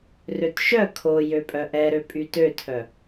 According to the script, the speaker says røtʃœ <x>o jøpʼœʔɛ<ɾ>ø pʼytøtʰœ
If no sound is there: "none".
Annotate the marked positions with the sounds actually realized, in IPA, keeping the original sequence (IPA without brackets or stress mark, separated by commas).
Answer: kʰ, ɾ